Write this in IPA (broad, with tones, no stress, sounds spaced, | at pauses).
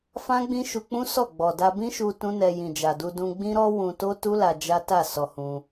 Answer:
f ã˦ ɡ͡b ĩ˦ ʃ u˧ k͡p ũ˦ s ɔ˦˨ ɡ͡b ɔ˨ d a˧ b ĩ˦ ʃ u˧ t ũ˦ n ɛ˧ j ĩ˨ d͡ʒ a˨ d u˧ d ũ˧ ɡ͡b ĩ˦ ɾ ɔ˦ w ũ˧ t o˦ t u˦ l a˧ d͡ʒ a˦ t a˦˨ s ɔ˧ h ũ˧